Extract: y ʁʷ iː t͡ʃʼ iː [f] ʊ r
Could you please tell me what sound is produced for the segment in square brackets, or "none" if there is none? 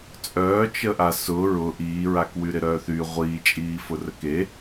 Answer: f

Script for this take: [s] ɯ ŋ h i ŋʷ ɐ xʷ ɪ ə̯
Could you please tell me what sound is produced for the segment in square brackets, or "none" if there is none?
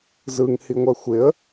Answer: z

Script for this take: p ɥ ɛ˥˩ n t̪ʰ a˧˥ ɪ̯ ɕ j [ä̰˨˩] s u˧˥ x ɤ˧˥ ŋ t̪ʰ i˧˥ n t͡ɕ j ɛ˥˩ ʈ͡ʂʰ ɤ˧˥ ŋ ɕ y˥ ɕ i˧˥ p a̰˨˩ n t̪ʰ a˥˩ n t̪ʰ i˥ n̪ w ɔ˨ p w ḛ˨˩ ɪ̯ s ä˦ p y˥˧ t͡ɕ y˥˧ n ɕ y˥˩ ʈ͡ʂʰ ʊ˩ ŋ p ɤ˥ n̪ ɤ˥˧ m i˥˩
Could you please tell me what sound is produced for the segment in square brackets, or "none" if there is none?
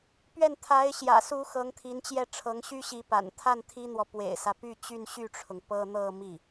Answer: ä̰˨˩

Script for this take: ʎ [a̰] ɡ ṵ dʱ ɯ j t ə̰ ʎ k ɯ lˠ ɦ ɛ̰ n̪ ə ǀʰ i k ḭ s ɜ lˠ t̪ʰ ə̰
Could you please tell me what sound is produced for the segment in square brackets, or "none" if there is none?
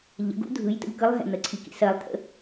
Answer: ə̰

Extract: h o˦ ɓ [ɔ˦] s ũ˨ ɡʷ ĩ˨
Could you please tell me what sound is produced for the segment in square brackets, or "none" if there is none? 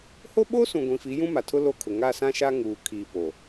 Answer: o˦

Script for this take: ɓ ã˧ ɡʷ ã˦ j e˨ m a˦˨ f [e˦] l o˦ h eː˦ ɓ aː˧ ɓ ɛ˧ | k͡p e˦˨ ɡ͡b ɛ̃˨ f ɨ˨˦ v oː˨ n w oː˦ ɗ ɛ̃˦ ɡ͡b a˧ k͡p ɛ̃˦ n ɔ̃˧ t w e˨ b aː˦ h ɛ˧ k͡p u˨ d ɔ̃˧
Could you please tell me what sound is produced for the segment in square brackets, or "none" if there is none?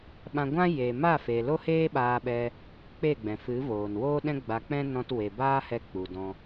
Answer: e˨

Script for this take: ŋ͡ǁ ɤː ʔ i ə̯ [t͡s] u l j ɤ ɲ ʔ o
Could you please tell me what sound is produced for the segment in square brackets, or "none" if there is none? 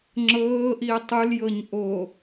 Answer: tˤ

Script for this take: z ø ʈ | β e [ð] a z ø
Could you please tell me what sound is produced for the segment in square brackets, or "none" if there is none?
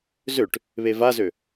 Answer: v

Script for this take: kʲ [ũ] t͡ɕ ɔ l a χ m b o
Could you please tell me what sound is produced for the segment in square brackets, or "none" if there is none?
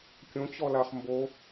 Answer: õ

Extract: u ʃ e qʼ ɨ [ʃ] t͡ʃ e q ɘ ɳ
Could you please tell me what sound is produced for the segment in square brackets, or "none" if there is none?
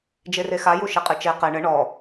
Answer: none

